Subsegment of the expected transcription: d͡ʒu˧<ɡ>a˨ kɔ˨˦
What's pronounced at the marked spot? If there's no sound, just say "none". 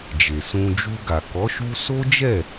ɡ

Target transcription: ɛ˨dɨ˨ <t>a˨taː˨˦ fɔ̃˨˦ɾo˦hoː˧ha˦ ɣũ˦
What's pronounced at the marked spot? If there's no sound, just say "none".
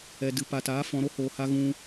p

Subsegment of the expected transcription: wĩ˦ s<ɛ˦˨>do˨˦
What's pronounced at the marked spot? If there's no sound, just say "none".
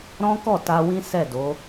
ɛ˦˨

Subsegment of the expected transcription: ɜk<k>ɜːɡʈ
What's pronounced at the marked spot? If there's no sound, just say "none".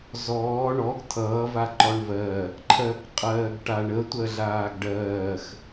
qʼ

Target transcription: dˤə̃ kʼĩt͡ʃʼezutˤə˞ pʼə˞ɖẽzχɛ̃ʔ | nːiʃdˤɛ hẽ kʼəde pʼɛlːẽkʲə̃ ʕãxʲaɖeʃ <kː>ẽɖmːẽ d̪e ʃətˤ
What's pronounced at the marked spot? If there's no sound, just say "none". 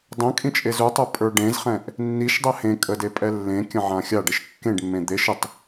kː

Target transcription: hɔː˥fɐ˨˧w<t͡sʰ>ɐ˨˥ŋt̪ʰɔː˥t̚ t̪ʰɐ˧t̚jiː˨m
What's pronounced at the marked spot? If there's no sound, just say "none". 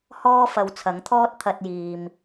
t͡sʰ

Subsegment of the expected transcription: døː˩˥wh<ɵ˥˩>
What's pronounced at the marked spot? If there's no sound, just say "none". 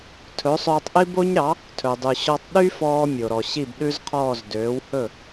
ɵ˥˩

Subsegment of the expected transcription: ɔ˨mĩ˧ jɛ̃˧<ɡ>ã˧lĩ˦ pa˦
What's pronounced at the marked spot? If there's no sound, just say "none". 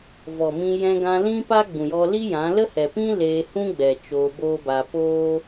ɡ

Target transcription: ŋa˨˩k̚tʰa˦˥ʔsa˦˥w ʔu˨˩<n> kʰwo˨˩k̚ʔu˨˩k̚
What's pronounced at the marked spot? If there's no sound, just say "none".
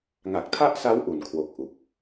n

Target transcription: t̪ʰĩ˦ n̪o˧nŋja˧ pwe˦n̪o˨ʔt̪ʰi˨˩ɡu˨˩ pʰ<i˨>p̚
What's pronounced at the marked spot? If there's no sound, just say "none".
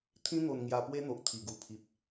i˨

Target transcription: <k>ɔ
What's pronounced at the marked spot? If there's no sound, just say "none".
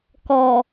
k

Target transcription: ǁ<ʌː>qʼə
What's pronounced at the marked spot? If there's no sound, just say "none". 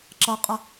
ʌ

